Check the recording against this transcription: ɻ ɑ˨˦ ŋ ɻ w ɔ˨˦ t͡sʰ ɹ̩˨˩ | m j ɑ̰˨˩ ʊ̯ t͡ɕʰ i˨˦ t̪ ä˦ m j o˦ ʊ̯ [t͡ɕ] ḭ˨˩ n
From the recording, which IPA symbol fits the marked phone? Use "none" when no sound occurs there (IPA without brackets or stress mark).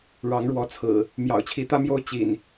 t͡ɕ